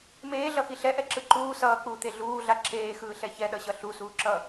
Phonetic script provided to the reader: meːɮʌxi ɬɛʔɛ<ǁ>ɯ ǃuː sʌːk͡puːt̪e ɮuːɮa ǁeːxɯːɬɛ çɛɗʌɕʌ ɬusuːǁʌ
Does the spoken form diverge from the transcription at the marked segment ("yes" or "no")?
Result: no